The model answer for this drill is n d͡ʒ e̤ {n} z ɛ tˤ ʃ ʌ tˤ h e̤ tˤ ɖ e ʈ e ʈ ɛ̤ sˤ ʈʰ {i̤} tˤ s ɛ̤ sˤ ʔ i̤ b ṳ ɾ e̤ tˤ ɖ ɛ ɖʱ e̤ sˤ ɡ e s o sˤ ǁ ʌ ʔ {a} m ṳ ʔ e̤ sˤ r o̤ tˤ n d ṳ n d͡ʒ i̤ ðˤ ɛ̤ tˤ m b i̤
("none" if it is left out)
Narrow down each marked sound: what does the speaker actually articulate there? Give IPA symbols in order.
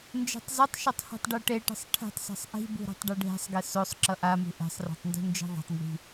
tˤ, e̤, a

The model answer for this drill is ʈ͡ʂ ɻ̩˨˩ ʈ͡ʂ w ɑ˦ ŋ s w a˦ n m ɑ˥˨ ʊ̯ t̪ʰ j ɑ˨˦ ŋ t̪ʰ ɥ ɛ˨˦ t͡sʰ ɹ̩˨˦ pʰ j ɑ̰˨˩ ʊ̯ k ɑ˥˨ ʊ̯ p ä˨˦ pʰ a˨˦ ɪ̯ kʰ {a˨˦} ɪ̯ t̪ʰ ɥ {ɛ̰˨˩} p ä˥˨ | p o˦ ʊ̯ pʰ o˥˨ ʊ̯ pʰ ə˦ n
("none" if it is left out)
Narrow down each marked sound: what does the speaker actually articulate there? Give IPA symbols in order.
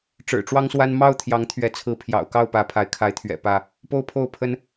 a˨˦, ɛ̰˨˩

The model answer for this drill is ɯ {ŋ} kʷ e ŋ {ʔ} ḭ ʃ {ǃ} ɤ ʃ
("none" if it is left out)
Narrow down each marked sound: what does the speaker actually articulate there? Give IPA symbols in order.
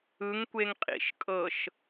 ŋ, qʼ, kʼ

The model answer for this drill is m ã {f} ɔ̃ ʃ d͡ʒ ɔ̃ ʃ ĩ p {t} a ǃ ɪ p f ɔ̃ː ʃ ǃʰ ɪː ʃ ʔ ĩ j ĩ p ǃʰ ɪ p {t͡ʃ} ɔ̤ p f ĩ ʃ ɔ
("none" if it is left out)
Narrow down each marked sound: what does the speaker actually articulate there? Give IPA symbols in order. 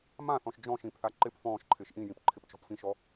θ, θ, t͡ʃ

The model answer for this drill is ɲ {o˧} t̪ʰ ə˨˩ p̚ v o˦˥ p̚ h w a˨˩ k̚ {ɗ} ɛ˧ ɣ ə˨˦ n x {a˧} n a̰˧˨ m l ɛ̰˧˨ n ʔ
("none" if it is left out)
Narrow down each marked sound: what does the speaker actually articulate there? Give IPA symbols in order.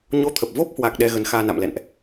o˧, ɗ, aː˧

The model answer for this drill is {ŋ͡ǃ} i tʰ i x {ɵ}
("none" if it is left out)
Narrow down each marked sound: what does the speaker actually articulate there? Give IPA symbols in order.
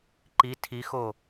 ǃ, o

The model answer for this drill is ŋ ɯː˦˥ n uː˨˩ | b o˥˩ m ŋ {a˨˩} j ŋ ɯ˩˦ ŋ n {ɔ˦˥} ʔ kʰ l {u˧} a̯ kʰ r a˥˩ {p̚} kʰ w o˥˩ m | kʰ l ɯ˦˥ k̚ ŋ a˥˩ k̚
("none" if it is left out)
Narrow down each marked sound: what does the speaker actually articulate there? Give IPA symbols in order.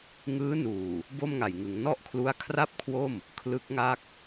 a˨˩, ɔ˥˩, u˦˥, p̚

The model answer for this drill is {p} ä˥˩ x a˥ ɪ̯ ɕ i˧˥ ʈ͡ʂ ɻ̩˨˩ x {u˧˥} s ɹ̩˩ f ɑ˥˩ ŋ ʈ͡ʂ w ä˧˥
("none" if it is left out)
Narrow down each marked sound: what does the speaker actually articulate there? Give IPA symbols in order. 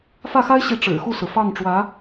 f, u˥˩

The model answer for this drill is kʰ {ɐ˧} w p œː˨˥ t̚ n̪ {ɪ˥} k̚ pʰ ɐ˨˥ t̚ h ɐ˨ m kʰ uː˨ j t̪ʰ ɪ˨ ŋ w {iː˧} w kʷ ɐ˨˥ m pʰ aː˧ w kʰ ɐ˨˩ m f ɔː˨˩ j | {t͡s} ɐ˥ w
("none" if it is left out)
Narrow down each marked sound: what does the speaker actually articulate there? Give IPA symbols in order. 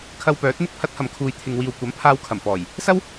ɐ˧, ɪ˧, iː˨, s

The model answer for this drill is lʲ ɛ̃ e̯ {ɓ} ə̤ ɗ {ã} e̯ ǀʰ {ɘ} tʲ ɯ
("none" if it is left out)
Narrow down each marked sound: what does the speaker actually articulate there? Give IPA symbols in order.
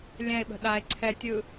ɓ, a, ɛ

